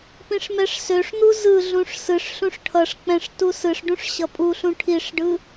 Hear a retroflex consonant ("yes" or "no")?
yes